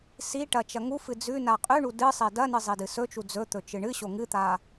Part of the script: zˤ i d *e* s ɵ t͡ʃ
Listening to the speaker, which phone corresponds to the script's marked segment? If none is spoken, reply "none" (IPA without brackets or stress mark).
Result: ɨ